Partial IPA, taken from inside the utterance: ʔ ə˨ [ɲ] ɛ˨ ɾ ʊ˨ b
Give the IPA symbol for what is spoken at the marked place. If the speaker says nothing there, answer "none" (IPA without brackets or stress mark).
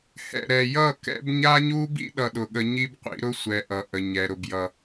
ɲ